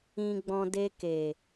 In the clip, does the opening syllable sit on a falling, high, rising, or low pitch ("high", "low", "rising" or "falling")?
low